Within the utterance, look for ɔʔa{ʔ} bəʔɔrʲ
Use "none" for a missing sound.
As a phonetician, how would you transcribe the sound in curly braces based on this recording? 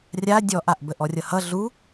ʔ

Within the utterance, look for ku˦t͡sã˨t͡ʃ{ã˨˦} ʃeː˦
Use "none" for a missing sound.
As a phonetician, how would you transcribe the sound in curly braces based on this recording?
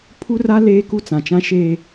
ã˦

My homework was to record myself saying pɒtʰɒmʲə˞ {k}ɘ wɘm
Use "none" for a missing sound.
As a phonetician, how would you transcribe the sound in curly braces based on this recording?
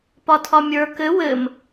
k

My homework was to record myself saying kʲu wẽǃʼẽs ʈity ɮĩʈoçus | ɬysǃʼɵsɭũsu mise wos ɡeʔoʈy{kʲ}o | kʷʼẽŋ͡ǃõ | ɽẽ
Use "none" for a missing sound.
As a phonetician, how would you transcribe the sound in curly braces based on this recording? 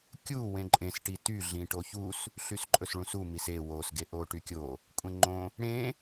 kʲ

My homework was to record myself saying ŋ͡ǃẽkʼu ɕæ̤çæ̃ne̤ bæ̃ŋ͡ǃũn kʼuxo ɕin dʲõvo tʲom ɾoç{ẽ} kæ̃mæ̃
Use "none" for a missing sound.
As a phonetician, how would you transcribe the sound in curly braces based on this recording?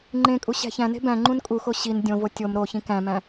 ĩ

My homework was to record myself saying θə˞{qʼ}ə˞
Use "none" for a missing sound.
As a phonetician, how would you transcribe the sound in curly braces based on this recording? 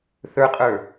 qʼ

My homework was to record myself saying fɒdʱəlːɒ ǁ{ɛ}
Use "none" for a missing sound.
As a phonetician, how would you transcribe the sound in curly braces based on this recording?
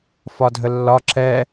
ɛ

